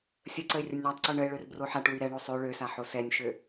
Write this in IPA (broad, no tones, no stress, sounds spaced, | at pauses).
sʲ ə ǀ ə ɪ̯ rʲ ə nʲ ɳ a tˤ ǀ ø ɳ ə ɪ̯ ɭ ø r b r o ħ a ʈ w y ɾ ɛ ɳ o sˤ ø ɭ ø s a ħ o s ɛ nʲ ʃ ø